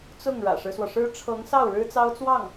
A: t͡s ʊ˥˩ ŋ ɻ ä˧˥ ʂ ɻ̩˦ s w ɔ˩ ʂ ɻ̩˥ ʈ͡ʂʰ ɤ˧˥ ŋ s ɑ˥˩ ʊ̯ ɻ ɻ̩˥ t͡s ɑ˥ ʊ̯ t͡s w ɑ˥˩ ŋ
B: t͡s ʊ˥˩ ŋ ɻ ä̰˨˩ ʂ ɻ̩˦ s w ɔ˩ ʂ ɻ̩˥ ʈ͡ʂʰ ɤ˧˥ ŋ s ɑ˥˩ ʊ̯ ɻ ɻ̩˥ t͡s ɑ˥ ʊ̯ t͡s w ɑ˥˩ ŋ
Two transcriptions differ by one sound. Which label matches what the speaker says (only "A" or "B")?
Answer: B